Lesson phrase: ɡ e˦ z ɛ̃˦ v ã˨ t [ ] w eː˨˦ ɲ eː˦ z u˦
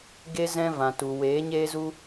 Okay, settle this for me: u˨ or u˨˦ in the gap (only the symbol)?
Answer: u˨